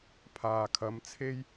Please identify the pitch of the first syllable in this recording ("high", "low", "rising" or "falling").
low